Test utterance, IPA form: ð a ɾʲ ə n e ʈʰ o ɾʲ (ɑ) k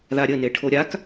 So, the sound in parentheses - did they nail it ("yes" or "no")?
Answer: no